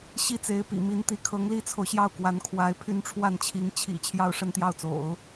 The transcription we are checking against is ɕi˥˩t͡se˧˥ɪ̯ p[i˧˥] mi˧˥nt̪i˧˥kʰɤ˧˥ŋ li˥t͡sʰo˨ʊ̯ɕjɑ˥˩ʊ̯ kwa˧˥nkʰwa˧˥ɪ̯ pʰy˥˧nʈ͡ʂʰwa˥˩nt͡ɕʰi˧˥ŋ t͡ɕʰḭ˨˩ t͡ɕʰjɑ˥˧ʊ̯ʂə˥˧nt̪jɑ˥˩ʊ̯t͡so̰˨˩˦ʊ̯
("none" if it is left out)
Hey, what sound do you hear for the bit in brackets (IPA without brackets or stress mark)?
ḭ˨˩